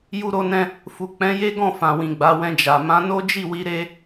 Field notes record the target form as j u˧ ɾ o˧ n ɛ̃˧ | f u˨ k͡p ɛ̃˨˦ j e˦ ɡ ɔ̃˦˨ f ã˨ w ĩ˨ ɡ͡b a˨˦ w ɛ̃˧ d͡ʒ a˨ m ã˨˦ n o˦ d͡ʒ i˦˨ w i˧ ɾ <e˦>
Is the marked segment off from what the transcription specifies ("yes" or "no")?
no